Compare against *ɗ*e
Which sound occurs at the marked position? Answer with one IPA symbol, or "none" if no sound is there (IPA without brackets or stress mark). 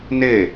n